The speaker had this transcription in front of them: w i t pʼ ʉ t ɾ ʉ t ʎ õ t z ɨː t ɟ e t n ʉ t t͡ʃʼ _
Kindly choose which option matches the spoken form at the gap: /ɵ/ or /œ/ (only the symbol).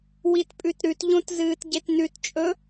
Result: ɵ